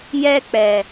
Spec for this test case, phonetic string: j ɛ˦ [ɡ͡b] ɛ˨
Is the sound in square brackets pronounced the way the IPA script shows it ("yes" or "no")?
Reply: no